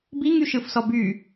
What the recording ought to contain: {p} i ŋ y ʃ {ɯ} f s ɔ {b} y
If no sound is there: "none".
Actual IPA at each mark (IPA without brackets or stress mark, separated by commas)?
b, ɯ, b